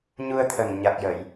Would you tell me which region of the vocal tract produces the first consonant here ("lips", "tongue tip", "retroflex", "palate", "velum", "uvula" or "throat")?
palate